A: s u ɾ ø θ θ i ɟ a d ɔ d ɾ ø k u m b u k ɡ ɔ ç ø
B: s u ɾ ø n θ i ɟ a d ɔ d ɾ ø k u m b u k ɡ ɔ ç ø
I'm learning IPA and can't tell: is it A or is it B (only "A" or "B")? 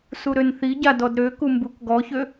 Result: B